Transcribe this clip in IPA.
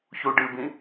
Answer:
ç u ɖ ɨ b ĩ

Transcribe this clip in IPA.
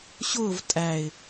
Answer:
ɕ ʊː v tʼ æ ɪ̯

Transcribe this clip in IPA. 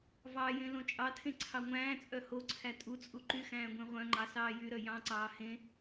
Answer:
v ɑ j ẽ l õ t͡ʃʼ ɑ tʰ ẽ ǀʰ ɑ ŋʷ æ̃ː t͡sʼ œ h o ǀʰ æ tʼ u t͡sʼ u ǃ y x æ̃ː ɡʷ ẽ ʁʷ œ̃ ŋ͡ǃ ɑ s ɑː j y ɾ œ j ɑ̃ ǀ ɑː h ẽ

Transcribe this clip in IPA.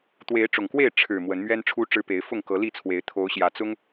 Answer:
t̪ w e˨˦ ɪ̯ ʈ͡ʂ ʊ˨˩ ŋ k w e˥˨ ɪ̯ ʈ͡ʂʰ ɻ̩˨˩ m w ə˨˦ n m ɥ ɛ˦ n ʈ͡ʂʰ u˦ ʈ͡ʂ ɻ̩˦ p e˨˦ ɪ̯ f ʊ˥˨ ŋ k ɤ˨˦ l i˥˨ t͡sʰ w e˨˦ ɪ̯ t̪ʰ o˨˦ ʊ̯ ɕ j ä˨˦ t͡s ʊ˦ ŋ

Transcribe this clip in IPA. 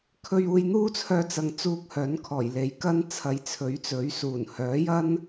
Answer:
kʰ ɵ˧ ɥ uː˧ j n̪ uː˥ t͡sʰ œː˧ t͡s ɐ˧ ŋ t͡s uː˧ k̚ h œː˨˥ n kʰ ɔː˨˩ j l e˨˧ j k ɐ˥ n t͡sʰ ɐ˨˧ j t͡sʰ ɵ˨˥ ɥ t͡s ɵ˨˥ ɥ s uː˨˩ n h œː˨˥ j ɐ˥ n

